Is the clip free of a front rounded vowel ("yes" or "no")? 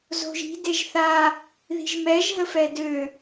no